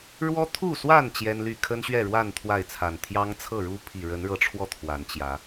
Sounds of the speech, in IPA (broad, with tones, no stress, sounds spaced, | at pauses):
ɻ w ɔ˦ t̪ʰ u˥˨ s w a˥˨ n t͡ɕ j ɛ˦ n l y˥˨ kʰ ə˦ n ɕ ɥ ɛ˥˨ ɻ w a˥˨ n t̪ʰ w a˥˨ ɪ̯ t͡sʰ a˨˩ n t̪ʰ j ɑ˦ ŋ t͡sʰ ɤ˥˨ ɻ u˦ pʰ i˨˩ ɻ ə˨˦ n ɻ ɤ˨˦ ʈ͡ʂʰ w ɔ˧ t̪ʰ w a˨˦ n t͡ɕ j ä˨˦